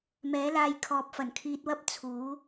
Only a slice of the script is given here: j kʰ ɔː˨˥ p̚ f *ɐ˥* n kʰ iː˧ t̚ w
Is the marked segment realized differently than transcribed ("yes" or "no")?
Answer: yes